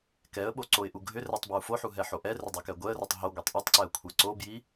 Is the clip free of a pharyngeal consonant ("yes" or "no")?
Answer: no